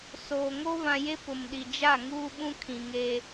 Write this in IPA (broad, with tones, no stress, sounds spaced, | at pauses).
s oː˨ ŋ o˦ β ã˨ j e˦ p ʊ˨ m ɗ i˨ d͡ʒ a˦˨ ŋ uː˦ ɓ ũ˦ kʰ ĩ˨ ŋ e˦